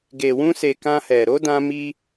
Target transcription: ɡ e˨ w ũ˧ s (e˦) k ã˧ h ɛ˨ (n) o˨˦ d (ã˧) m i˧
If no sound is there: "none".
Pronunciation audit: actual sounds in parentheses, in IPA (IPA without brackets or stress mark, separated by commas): e˨, ɾ, ã˧